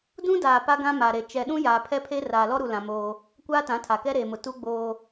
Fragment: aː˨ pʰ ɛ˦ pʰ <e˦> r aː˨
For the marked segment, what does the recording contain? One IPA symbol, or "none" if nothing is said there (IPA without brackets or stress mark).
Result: e˦